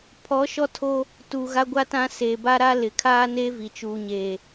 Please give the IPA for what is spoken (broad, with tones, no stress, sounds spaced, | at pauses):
pʰ ɔ˨˦ ʃ ɔ˦ tʰ o˦ | t u˨ ɣ a˦ ɡʷ a˦ t ã˦ s eː˨ b a˦ ɾ a˦ l ɪ˨ kʰ aː˦ n eː˦ v i˨ t͡ʃ uː˨ ɲ eː˨